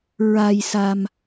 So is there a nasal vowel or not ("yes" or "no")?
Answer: no